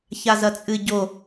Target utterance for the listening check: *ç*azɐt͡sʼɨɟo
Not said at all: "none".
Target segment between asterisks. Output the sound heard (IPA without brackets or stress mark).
ç